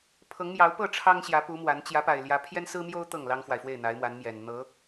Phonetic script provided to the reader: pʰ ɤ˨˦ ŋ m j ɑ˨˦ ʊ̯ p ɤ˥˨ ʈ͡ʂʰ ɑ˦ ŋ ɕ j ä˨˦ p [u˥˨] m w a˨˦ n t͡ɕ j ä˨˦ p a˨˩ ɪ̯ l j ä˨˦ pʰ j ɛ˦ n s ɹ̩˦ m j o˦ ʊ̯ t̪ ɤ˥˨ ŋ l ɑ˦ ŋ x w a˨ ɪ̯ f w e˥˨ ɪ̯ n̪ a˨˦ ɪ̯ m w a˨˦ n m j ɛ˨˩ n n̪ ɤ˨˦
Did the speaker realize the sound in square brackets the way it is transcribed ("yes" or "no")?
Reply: no